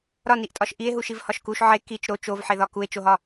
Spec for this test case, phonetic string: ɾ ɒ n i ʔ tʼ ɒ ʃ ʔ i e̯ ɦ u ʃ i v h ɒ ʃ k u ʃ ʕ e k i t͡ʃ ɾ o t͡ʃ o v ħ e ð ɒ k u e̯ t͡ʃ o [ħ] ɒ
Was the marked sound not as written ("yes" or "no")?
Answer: yes